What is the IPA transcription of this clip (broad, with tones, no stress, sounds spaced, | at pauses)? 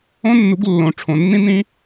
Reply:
õ˦ nː u˨˦ ɡ lː õ˨ ʈ͡ʂʰ õ˨ nː ĩ˦ n ĩ˦